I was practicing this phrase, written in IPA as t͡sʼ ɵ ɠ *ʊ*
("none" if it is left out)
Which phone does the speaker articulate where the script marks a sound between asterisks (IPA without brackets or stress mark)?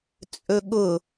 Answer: ʊ